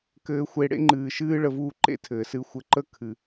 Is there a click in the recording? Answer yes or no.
yes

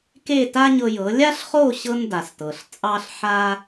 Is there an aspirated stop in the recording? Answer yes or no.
no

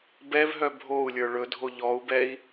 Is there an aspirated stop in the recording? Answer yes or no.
no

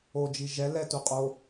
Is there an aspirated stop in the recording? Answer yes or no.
no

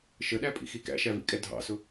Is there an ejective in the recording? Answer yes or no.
yes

